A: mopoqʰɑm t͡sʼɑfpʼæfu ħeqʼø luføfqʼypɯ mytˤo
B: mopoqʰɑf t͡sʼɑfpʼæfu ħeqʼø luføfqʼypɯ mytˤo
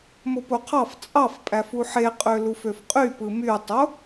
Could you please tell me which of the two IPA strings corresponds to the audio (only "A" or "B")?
B